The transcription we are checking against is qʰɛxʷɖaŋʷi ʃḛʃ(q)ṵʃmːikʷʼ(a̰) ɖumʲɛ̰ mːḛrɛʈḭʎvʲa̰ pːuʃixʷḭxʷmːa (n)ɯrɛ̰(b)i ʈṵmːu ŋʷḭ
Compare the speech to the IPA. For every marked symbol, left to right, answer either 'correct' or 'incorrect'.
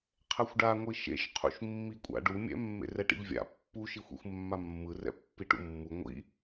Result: incorrect, correct, incorrect, incorrect

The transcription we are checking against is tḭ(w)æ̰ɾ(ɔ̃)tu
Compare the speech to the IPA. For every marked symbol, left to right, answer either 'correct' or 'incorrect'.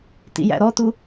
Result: incorrect, incorrect

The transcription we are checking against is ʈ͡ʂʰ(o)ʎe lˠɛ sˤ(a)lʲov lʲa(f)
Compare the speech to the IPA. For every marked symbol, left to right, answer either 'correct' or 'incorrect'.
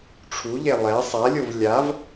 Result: incorrect, correct, incorrect

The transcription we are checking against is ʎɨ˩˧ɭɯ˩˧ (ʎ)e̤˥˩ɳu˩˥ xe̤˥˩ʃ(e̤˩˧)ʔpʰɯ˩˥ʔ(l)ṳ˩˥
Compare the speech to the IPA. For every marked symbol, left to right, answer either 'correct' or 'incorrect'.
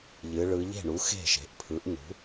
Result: correct, incorrect, incorrect

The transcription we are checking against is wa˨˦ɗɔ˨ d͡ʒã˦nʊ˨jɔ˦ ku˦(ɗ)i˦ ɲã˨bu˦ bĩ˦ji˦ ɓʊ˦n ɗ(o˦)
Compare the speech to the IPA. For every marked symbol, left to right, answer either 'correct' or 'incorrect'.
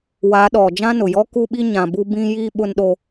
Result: incorrect, correct

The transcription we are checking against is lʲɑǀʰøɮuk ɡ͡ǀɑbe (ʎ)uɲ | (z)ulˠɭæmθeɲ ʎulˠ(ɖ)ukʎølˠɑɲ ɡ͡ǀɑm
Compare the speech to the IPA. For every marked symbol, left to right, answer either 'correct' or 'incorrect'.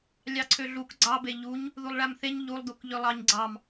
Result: correct, incorrect, incorrect

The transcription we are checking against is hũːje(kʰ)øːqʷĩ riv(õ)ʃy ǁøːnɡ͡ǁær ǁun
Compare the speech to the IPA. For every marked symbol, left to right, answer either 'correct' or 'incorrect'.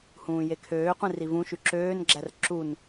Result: correct, incorrect

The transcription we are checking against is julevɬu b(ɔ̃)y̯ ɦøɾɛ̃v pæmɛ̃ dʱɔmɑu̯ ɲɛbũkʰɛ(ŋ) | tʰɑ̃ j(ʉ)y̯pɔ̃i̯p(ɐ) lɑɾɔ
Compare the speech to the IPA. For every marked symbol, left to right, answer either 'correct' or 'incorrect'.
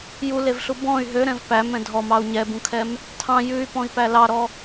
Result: correct, incorrect, correct, incorrect

